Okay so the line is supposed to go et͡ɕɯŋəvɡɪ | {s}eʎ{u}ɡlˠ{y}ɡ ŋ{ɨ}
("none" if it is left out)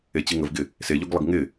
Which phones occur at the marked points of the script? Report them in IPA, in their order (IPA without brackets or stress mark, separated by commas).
s, o, ɪ, ɪ